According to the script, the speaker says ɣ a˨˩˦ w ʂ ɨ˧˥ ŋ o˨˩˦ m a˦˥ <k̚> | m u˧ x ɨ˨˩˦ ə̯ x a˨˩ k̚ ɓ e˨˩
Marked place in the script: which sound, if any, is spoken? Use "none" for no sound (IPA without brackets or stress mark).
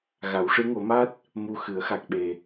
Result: t̚